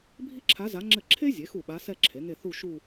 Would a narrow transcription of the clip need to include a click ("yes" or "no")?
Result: yes